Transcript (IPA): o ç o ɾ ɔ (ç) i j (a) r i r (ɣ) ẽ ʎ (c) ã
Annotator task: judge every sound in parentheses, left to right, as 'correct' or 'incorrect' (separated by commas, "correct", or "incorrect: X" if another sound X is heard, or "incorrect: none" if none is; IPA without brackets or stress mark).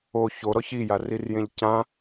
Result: correct, correct, incorrect: j, correct